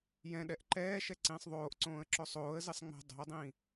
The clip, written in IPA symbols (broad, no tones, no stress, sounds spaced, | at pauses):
j ɛ̃ ɗ ɛ ʔ ǃ ɛː ʃ ɛ ǀ ĩː sˤ ðˤ oː ʔ ǀ õː ə̯ ǁ o sˤ oː ə̯ z i sˤ ŋ͡m ɛ̤ dˤ o̤ ə̯ dˤ ĩː